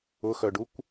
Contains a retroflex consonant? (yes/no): yes